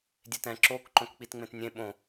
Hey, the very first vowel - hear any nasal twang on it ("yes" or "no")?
no